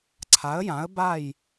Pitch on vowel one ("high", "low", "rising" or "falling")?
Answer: rising